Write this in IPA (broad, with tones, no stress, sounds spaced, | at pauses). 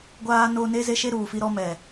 ɡʷ aː˦ n o˦ n e˦ z e˦ ʃ e˦ ɾ uː˨ f i˦ ɾ ɔ˦ m ɛ˨